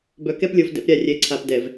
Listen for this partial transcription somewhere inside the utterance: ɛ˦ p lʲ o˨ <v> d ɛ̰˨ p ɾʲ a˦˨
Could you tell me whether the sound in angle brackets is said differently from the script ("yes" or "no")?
no